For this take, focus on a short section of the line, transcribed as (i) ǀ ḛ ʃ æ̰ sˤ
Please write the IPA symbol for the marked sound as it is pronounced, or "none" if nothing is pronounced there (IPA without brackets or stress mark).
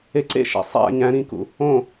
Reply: e